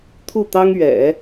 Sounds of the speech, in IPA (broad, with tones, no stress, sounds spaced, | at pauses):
t̪ʰ u˥˩ t̪ ɑ˥ ŋ ɥ ɛ̰˨˩˦